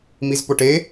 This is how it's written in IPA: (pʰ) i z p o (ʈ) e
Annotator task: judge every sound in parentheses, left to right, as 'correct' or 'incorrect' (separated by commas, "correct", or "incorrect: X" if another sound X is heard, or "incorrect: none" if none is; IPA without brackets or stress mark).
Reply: incorrect: m, correct